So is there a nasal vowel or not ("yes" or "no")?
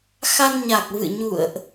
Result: no